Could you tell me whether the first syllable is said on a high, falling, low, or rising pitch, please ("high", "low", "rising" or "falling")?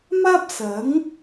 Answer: high